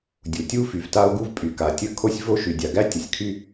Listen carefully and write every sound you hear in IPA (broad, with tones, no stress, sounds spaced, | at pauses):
dʲ u˩ tʲ u˥ f y˩ v t a˥ o̯ ɡ u˥ v pʼ y˩ k a˩ tʲ ə˥ kʰ o˥ sʲ v o˥ ʃ y˩ dʲ a˩ ɡ æ˥ tʲ ə˩ sʲ kʰ y˥